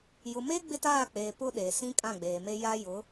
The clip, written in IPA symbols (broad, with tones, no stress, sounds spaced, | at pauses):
j ʊ˨ m eː˦ ɡ͡b ɪ˦ t aː˦˨ k͡p eː˨ p ʊ˦ ɗ e˨ s ĩ˦ kʼ ã˦˨ ɡ͡b eː˨ m e˦ j a˦ j ʊ˨˦